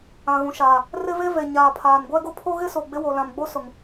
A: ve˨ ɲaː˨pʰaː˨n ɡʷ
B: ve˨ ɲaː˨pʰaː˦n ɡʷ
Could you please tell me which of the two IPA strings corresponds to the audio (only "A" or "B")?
A